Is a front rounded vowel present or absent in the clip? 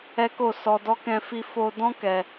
absent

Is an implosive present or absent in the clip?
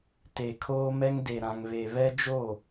absent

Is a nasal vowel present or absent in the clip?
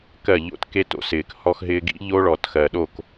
absent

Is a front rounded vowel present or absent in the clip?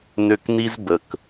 present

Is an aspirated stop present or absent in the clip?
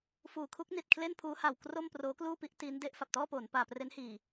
present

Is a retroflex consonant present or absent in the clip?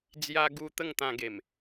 absent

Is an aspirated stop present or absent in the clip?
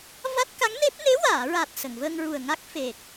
absent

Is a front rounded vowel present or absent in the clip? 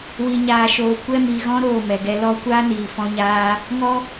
absent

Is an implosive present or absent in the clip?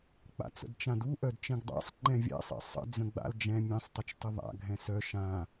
absent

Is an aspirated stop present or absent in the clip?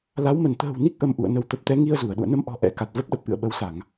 absent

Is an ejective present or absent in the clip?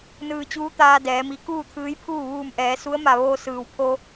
absent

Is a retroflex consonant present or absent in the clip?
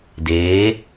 absent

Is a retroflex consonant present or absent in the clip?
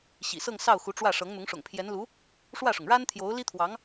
present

